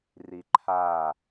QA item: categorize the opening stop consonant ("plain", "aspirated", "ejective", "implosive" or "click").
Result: click